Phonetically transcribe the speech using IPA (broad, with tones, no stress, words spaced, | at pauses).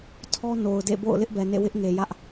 tʰɔ˦ no˨ʊ̯dḛ˦˨bo̰˦˨ʊ̯ lɪ˦ʔbɛ˨nḛ˦˨ wɪ˦ʔŋe˨jä˦ʔ